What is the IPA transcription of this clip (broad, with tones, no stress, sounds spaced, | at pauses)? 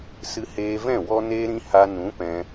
s ɨ˧ h eː˧ v ɛ̃˦˨ w ɔ˦ n eː˦ ɾ ĩ˦ h a˧ n ũ˨˦ p ɛ̃˧